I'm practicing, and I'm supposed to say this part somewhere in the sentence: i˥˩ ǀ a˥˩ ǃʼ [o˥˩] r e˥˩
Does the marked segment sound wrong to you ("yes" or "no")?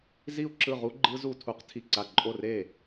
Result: no